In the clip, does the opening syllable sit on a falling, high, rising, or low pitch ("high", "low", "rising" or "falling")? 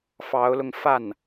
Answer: rising